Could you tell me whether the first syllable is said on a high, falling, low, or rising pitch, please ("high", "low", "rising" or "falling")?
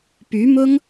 rising